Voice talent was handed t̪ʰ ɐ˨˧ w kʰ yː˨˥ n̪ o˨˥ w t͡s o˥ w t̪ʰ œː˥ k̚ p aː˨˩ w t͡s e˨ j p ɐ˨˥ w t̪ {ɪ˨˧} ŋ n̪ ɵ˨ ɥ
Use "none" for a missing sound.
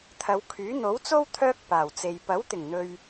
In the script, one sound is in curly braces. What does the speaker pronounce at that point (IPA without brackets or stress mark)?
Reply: ɪ˨˩